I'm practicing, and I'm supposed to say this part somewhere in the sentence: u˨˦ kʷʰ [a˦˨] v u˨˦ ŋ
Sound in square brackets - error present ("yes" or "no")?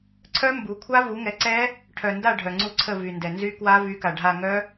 yes